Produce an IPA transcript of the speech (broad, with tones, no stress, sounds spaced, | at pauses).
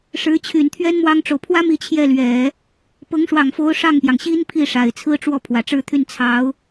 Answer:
ʂ ɻ̩˧˥ t͡ɕʰ y˨˩ n t̪ʰ ɥ ɛ˥ n m w ɑ˥ ŋ ʈ͡ʂ o˨ ʊ̯ pʰ w ä˥ m i˥˧ t͡ɕʰ j ɛ˥˩ l ɥ ɛ˨˩˦ | p ɤ˧˥ ŋ ʂ w ɑ˨˩ ŋ f o˧˥ ʊ̯ ʂ ɑ˥˩ ŋ p j ɑ˩ ŋ ɕ i˥ n pʰ i˥˩ ʂ a˨˩ ɪ̯ t͡sʰ ɹ̩˥ ʈ͡ʂ w ɔ˥˩ pʰ w ä˨˩ ʈ͡ʂ ɻ̩˥˧ t̪ʰ y˥˩ n t͡sʰ ɑ˧˥ ʊ̯